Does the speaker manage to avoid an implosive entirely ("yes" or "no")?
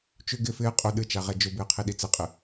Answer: no